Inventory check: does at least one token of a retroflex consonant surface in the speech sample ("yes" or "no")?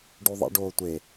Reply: yes